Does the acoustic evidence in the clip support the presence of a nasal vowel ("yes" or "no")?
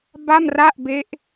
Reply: no